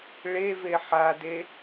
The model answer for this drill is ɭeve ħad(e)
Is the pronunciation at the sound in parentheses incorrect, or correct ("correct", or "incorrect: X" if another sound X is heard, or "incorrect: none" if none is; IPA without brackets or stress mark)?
correct